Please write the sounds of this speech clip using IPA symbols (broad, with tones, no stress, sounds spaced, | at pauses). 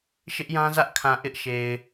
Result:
ʃ ɪ˦ ʔ j ã˦ z ä˦ ʔ kʰ ã˨ ʔ ɪ˦ ʔ ʃ e˨ ɪ̯